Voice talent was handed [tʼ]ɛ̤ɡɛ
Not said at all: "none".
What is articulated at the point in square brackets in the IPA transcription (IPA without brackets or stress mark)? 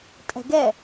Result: tʼ